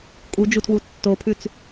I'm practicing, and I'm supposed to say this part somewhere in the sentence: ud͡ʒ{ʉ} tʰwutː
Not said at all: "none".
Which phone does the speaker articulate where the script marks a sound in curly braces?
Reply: u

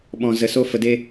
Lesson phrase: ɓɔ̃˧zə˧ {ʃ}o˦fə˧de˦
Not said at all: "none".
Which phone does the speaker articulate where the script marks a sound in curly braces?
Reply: s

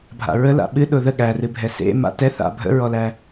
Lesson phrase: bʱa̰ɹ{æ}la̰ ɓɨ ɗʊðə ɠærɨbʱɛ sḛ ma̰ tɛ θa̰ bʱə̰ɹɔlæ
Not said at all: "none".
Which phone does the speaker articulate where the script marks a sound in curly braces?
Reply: ə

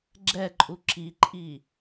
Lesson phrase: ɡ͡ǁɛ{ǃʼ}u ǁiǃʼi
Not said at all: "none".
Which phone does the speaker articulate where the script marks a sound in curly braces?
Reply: ǃʼ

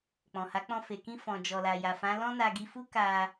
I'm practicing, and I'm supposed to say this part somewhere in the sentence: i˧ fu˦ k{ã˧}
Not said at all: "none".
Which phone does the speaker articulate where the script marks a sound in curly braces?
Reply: a˧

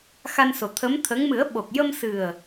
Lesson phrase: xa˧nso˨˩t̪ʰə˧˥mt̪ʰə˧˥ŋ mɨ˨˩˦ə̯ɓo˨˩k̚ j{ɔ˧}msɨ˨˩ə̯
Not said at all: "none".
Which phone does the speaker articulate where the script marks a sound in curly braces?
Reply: ə˧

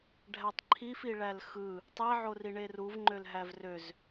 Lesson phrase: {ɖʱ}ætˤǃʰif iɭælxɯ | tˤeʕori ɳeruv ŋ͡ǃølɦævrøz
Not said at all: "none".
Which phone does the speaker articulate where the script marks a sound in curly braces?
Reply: ɖʱ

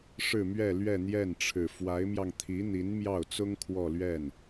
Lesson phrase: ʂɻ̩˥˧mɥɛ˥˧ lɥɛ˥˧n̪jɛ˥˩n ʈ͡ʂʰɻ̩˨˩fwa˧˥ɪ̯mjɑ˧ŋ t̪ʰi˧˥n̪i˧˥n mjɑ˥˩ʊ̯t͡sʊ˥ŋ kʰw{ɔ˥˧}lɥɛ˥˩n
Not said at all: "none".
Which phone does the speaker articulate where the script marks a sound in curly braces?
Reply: ɔ˥˧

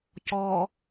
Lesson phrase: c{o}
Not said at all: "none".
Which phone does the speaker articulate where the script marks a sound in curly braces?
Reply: ɔ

